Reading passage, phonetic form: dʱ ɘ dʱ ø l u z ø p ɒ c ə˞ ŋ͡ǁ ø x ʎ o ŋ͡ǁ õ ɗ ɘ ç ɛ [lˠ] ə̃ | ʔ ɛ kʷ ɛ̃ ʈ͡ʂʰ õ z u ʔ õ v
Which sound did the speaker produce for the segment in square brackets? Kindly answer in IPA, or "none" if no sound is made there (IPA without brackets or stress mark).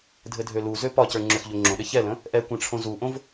l